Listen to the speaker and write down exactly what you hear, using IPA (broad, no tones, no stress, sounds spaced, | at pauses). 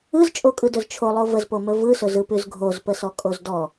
ɯ z t͡ʃʼ o kʼ ɯ d ɵ z t͡ʃʰ o lˠ o v ə z p o m ɵ v ɯ s ɵ z ɯ p ʉ z ɡʱ o z p ə s ɔ kʼ o z d ɔ